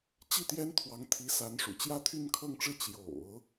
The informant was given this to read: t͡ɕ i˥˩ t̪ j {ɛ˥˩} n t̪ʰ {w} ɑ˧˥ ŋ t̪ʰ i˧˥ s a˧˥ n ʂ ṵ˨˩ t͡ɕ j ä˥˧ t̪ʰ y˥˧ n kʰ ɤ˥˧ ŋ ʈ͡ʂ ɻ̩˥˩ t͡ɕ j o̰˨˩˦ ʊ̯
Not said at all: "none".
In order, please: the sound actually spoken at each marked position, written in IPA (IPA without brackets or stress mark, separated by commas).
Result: ɛ˥, w